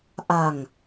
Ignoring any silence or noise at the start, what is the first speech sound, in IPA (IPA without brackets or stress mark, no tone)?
ʔ